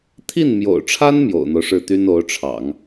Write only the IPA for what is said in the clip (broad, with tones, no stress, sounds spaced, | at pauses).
t̪ʰ i˥˩ n m j o̰˨˩ ʊ̯ ʈ͡ʂʰ a˥ n m j o̰˨˩ ʊ̯ n̪ o˦ ʊ̯ ʂ ɻ̩˥˩ t̪ y˥ n o˧˥ ʊ̯ ʈ͡ʂʰ ɑ̰˨˩˦ ŋ